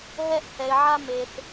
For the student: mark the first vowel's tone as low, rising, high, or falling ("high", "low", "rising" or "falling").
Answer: high